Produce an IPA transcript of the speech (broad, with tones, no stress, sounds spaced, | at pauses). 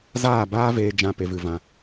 z aː˦˨ b aː˦ v eː˧ d͡ʒ ã˧ p e˨ v ɨ˨ v ã˧